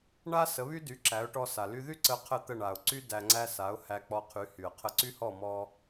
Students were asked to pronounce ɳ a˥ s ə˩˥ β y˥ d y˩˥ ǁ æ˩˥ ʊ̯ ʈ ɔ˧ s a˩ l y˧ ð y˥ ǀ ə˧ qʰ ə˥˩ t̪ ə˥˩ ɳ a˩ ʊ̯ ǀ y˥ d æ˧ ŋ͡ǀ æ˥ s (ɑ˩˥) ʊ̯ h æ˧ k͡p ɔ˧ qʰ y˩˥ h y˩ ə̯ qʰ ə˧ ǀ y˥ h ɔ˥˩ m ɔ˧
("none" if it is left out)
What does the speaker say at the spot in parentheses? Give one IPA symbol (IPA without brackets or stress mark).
a˩˥